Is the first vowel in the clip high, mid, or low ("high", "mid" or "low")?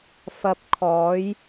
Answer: low